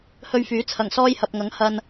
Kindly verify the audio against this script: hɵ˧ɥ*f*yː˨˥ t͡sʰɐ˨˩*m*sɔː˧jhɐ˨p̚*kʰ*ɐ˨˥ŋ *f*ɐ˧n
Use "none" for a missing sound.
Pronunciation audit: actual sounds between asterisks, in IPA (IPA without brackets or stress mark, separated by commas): f, ŋ, ŋ, h